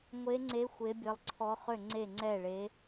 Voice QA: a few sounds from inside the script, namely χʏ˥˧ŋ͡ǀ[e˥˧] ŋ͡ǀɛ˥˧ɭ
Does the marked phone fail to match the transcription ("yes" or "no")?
no